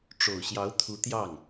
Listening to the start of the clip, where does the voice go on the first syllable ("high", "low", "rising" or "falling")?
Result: low